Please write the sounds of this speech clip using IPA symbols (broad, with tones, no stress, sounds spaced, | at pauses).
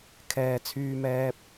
kʰ ɛː˨ t͡sʰ yː˧ m ɛː˧ p̚